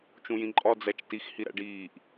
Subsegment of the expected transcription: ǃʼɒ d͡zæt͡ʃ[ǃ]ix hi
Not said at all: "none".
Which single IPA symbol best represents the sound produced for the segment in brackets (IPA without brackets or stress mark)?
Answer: t